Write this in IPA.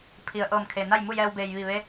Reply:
pʰ i˩ ə̯ ʔ ɤː˧˩ m kʰ e˩ n a˥˨ j m u˥˨ j ɛː˧ w b eː˩ j ʋ i˧˩ ʋ e˧˥

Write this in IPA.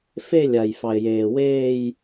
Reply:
f e˥˧ lʲ a˨ j f ɑ˨ ɪ̯ j eː˨ w eː˥˧ j

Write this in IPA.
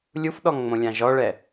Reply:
lʲ u f ɗ ɔ ŋ ŋ͡m õ lʲ ã ʒ ɔ ɭ ɛ

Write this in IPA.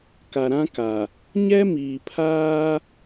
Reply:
k a˨ ɾ ã˦ k a˨ | ɲ ɛ˦ m iː˨ pʰ aː˦

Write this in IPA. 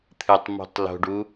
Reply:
t̪ʰ ɨ tˤ m o̤ tˤ l o̤ ɖ u

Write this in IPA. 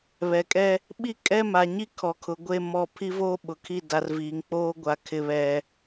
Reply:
β ɛ˨ kʼ ɛ˦ | ɓ i˦ kʼ ɛ˦ m a˨ ɲ i˦ kʰ ɔ˨ kʰ ʊ˨ ɡʷ e˦˨ m ɔ˦˨ pʰ i˦ v oː˦ ɓ ʊ˨ kʰ i˦˨ d a˨ r v iː˨ ŋ k͡p oː˦ ɡʷ a˨ kʰ ɪ˨ β ɛ˨

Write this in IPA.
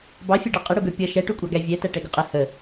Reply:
b ɑ fʲ ɛ ɖ ɑ qʼ ɪ ɽ u ɡ ə˞ pʲ ʌ ʃ ɛ ʈ u kʷʼ ɑ ɡ æ vʲ ɛ t æ ʈ ɛ ɡ ʊ qʼ ə h ə

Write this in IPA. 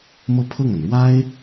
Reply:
m ɤ˥˧ pʰ ɤ˥˩ ŋ a˩ n ɻ w a˥ ɪ̯

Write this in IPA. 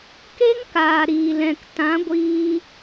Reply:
k e˦ ŋ k aː˨ ɾ iː˨ l ɛ̃˨ k t ã˨˦ ɡʷ iː˧

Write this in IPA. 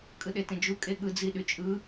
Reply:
kʼ ɯ ɗ e t ẽ d͡ʒ u kʼ e ɠ ɯ d͡z i ɗ y t͡ʃʼ ɯ

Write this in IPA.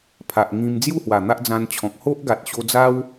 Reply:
pʰ a˨ ʔ ŋ ĩ˧ m d͡z j u˥˧ h w a˨˩ n̪ a˦ ʔ d͡z ã˧ n t͡ɕʰ ɔ̃˨ k̚ h o˦ ʔ ɡ a˨ t̚ ɕ o˧ d͡z a˦ w

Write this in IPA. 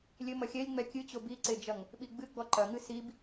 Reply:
lʲ ɘ m ɐ xʲ ɛ lʲ ŋ͡m ɛ kʲ ɨ t͡ɕ o b i ǀ e d͡ʒ ɐ ŋ | ɓ i ɡ͡b ɨ ɡ͡b ɔ ǃ ɐ ŋ ɨ s i b

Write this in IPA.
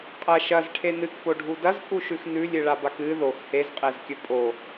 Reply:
qʼ ɐ ʃ ɐ z ʈʰ e n ɨ k p o ɖʱ u d ɐ z pʼ u ʃ ʉ x n ʉ lʲ ɨ ɭ a b a k ɨ ð o x h e z qʼ e z kʲ ɵ pʼ o

